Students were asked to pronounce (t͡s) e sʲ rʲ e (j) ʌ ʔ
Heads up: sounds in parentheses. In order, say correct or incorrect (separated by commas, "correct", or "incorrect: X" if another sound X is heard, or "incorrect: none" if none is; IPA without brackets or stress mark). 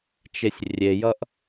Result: incorrect: t͡ʃ, correct